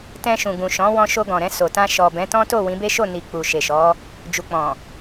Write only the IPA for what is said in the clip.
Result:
t ɛ̃˧ ʃ ũ˨ ɡ ũ˨ ʃ ɔ̃˨˦ w ɔ̃˧ ʃ o˧ ɡ ɔ̃˨ ɾ ɛ̃˧ s o˨ t ã˧ ʃ ɔ˨ b ɛ̃˨˦ t ɔ̃˦ t o˦˨ w ĩ˨˦ b e˦ ʃ o˦˨ n i˨ k͡p u˨ ʃ e˨ ʃ ɔ˨˦ | d͡ʒ u˨ k͡p ɔ̃˨

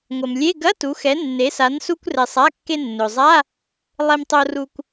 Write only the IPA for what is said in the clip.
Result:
ŋʷ ɐ˩ m lʲ e˧˥˧ ɡ ɐ˧˥˧ t u˩˧ x ɛ˩˧ nː e˩˧ s a˩˧ n s u˧ kʷ r ɛ˩ sˤ a˩˧˩ kː e˧ nː ɵ˩ zˤ a˧˥˧ | lˠ e˧ m tˤ o˧ r u˧ kʷ

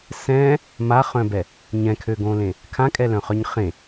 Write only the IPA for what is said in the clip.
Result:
s ɛ̃ | m a χ œ̃ b ɛ | ɲ ɛ̃ kʰ ø ɡ õ l ẽ | kʰ ã kʼ ɛ l œ̃ χ œ ɲ χ ẽ

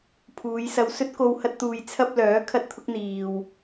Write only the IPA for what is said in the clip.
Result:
pʰ uː˨˧ j s ɐ˧ w s ɵ˥ t̚ k o˧ w h ɐ˥ t̚ t̪ uː˧ j t͡sʰ ɐ˥ p̚ l œː˨˥ kʰ ɐ˥ t̚ t̪ʰ ʊ˥ k̚ n̪ iː˨ w

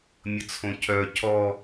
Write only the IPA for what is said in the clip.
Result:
mʲ ə t͡sʰ õ cʰ œ cʰ ɔ

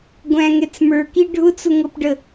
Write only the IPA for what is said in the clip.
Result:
ɡʷ æ̃ ŋ ɛ t͡s m ə˞ k i ɖʱ ʊ t͡s ʊ ŋ ɤ p ɖ ə

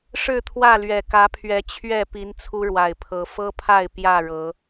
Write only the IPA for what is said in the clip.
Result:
ʂ ɻ̩˥˨ t̪ʰ w ä˥˨ l ɥ ɛ˨˩ k ä˨˦ pʰ ɥ ɛ˨˦ t͡ɕʰ ɥ ɛ˥˨ p i˨˦ n t͡sʰ u˦ ɻ w a˨˩ ɪ̯ pʰ ɤ˨˦ f ɤ˦ pʰ a˥˨ ɪ̯ p j ä˥˨ ɻ ɤ˨˦

